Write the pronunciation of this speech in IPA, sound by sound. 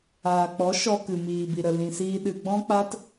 aː˨ k͡p ɔ˨˦ ʃ ɔ˧ k ɨ˨ m iː˨ b i˨ ɾ ə˨ l ĩ˨ s iː˧ ɗ ɨ˧ ɡ͡b ɔ̃˦ k͡p a˦ t

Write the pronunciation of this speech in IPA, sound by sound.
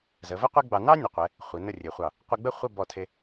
z ə˩˧ v ə˥ qʷ i˥ ɡ͡b ɑ˧ n ɑ˥ nʲ ə˩˧ qʷ ɛ˩˧ | χʷ i˩˧ n ə˥˧ rʲ e˩˧ χʷ ɑ˧˩ | qʷ ɛ˧ ɡ͡b ə˥˧ χʷ ə˥˧ b ɔ˧˩ tʰ e˧

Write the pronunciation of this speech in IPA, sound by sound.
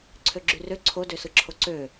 ǀʰ ø ɡ͡ǁ y r ø ǀʰ o d ø s ɯ ǁʰ o ǀ ø

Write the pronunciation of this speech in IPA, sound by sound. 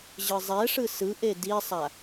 ʑ ɯ zˤ ɛ ʂ ɯ s ɯ ʔ e d i sˤ a

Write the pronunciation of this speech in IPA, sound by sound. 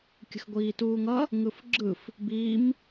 kʲ ə̤ x ɡʷ iː t uː ŋ ʌ | ŋ ɯ f ɡ͡ǁ ɯ f | b iː m

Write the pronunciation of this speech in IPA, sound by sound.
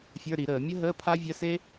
fʲ ə˞˧˥˧ ɾ i˧˩˧ ɾ əː˧˩˧ mʲ ə˥ ɦ əː˧˥˧ pʰ a˥ vʲ ə˧˥˧ s e˥

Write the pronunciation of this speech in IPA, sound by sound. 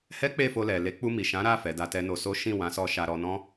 h ɛ˦ k͡p e˦˨ f o˧ l ɛ˨ l e˨˦ k͡p u˧ m i˨ ʃ ã˨˦ ɾ a˦˨ f ɛ˨˦ d a˦ t ɛ˦ n o˧ s o˦ ʃ ĩ˦˨ w ã˨˦ s ɔ˧ ʃ a˧ ɾ ɔ˧ n ɔ̃˦

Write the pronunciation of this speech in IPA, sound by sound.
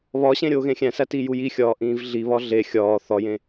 β ɒ ɕ ẽ ɾʲ oː ɣ ẽ xʲ æ̃ s æ t i j u j i xʲ ɒː ʔ ĩː v ɮ i β ɒ ɮ e xʲ ɒː θ ɒ j ẽ

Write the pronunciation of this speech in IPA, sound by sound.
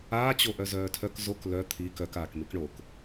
aː t͡ɕ o ʔ œ z œː tʰ œ k z o k l œ t̪ʰ i k œ k aː k m i k ɳ o k

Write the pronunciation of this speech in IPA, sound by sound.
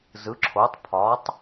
z ɯ˩˥ ǁʰ o˩˥ tˤ pʰ ɒ˩˥ tˤ

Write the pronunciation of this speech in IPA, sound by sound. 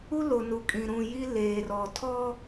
u˦ l o˨ n u˨ kʼ ĩ˨ ɾ ũ˨ j i˦ l eː˨ r ɔ˨ tʰ ɔ˦

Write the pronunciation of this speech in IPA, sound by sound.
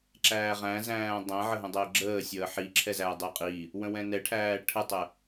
ǁ æː ʁ æ̃ z æ̃ː dˤ ɛ̃ ʕ ə ɦ ə̃ dˤ əː ɡ͡ǁ əː sʲ əː ħ i ǁʰ ɛ z æː dˤ əː qʼ i | w ə̃ w ɛ̃ n ɛ ʈʰ æː ʈʰ ə tˤ ə

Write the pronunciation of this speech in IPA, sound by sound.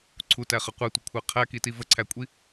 ǀʰ u t æ χ ə qʷ ɜ tʷ ə kʷʰ ɜ qʰ æ k i t i v ə ǀʰ æ kʷʼ i

